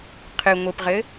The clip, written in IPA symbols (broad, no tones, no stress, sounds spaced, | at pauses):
qʰ ɨ ŋʷ ɘ p ʁ ɘ